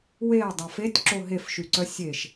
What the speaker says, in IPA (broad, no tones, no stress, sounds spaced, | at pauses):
w e ɐ̯ dˤ a f e tʲ ǁ o ɦ e f ʃ y ǀ œ sʲ e ʃ